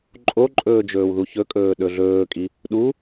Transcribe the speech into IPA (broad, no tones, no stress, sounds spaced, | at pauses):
ǃʼ o ǃʼ ɵː d͡ʒ ɵː w ð u ç ɵ kʼ ɵː ɗ ɵ ɮ ɵː kʼ i | ɗ u